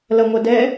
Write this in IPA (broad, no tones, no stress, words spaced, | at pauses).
lɐŋʷɐdɛ